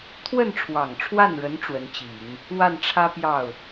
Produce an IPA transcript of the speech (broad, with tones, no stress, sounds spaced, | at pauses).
t̪ʰ w ə˥˩ n ʈ͡ʂʰ w ɑ˨˩ ŋ ʈ͡ʂʰ w a˥˩ n ɻ ə˧˥ n ʈ͡ʂ w ə˧˥ n t͡ɕ i˨˩˦ ŋ | w a˥˩ n ʈ͡ʂʰ ä˥ p j ɑ˥˩ ʊ̯